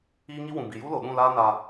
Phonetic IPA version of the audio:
iː˦ ŋ i˦ w ũ˨ b i˨ j u˦ l o˨ ɗ ũ˦˨ l aː˦ n a˧

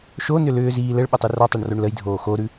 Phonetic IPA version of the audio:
ʃ o n ʏ l ʏː z iː l ə ɭ ɓ ə tˤ ʉ r ɔ tˤ o ɳ r o ɳ l ə j dʱ oː x o ɾ ʉ

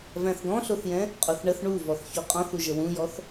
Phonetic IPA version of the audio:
v æ̃ θ ɡ ɔ̃ ɬ o θ j ɛ̃ | qʼ o θ ɳ ə θ ɳ u v ɔ θ ç o qʼ ɔ̃ θ u ʒ ə w ũ j ɔ θ

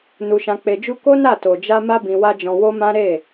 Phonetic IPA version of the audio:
n u˧ ʃ ã˧ k͡p e˧ d͡ʒ u˦ k o˦ n a˦˨ t o˨ d͡ʒ a˧ m a˦ b ĩ˧ w a˦ d͡ʒ ɔ̃˧ w o˦ m ã˦ ɾ e˦˨

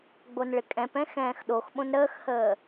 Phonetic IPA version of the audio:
ɡ͡b o n ɭ ɪ kʼ ɛ̃ p ɛ̃ x ɛ̃ː x ɗ o x ɓ õ n ɾ əː x h əː

